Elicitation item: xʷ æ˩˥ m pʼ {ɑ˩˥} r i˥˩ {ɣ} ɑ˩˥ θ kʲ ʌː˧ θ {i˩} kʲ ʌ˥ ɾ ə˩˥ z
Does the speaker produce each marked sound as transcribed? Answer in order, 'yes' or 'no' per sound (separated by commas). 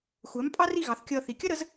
no, yes, yes